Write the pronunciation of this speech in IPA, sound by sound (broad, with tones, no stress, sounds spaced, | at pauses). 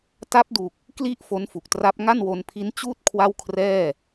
t a˦˥ p̚ d u˨˩ k̚ | k l i˥˩ ʔ f o˦˥ n f u˨˩ k̚ t r a˦˥ p̚ ŋ a˥˩ n w o˧ n pʰ i˦˥ n t͡ɕ uː˥˩ t̚ kʰ w a˥˩ w kʰ r ɛː˥˩